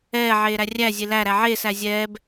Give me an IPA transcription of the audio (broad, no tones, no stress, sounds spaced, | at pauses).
ɛː ʕ eː ɾ æ rʲ æ zʲ e l æ ɾ æ ʕ eː s æ zʲ ɛː b